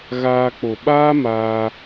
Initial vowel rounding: unrounded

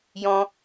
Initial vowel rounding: rounded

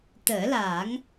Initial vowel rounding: unrounded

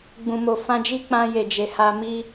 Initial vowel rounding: rounded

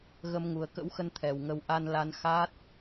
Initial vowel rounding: unrounded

